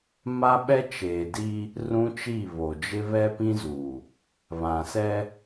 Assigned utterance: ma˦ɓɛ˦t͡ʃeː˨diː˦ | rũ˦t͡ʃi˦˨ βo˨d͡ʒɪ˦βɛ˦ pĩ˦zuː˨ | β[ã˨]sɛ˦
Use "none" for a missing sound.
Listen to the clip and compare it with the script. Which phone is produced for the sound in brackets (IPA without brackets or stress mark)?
ã˨